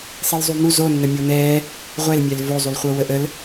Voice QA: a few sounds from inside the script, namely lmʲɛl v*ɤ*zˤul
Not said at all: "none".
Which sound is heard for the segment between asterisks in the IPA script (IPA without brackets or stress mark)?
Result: o